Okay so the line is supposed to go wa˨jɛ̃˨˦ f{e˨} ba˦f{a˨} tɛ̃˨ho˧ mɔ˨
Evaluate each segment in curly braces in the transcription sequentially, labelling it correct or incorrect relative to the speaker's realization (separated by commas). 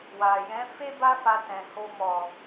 incorrect, incorrect